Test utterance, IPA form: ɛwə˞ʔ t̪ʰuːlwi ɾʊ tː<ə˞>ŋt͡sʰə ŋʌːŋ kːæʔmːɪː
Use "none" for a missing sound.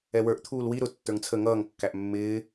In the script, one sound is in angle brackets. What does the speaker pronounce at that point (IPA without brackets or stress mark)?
ə˞